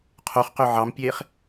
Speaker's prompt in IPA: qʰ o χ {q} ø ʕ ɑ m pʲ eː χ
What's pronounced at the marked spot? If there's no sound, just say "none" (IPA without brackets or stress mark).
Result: q